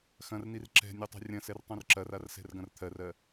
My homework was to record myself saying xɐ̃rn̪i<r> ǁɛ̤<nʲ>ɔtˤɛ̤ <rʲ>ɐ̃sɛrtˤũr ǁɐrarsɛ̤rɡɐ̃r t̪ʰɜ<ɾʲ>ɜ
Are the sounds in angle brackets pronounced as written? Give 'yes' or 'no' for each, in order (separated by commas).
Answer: yes, yes, yes, no